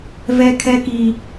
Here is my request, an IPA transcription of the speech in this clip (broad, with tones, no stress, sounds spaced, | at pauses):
v ɛ˦ kʰ ɛ˦ k i˦